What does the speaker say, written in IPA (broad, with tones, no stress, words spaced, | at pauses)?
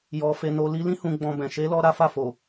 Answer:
jɔ˨ fe˨no˨ li˧lĩ˦ hũ˧ ɡ͡bɔ̃˧bɛ̃˨ ʃe˨˦lɔ˧ ɾa˦fa˦˨fo˨